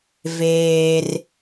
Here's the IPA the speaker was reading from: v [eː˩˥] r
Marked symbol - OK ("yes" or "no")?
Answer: no